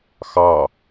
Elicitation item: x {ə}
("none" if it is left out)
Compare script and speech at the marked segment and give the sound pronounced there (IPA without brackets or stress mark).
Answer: ɑ